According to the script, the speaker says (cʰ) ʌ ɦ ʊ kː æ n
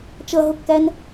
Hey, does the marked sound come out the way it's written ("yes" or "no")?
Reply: no